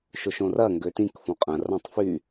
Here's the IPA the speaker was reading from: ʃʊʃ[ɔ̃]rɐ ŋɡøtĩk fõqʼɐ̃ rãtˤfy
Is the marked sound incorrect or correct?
incorrect: õ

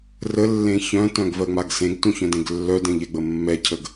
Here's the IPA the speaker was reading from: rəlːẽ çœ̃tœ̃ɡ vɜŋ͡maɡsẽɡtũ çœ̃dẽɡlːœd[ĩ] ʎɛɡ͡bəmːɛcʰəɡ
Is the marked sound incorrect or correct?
incorrect: ẽ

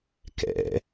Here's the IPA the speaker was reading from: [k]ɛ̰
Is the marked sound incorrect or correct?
correct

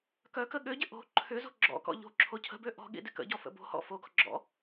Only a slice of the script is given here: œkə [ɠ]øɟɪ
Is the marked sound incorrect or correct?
correct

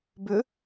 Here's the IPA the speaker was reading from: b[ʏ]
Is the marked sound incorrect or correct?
correct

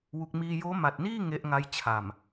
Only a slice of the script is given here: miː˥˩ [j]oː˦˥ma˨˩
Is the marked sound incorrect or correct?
correct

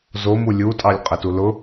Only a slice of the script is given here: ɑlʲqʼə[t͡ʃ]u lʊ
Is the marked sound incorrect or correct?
incorrect: t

